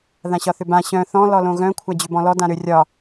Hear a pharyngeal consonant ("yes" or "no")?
no